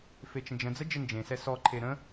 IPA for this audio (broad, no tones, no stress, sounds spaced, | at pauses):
f e t͡ʃ ə̃ d͡ʒ ə̃ d͡z ə d͡ʒ ə n d͡ʒ ẽ s ɛ s ɔ ǃʰ e ɾ ə̃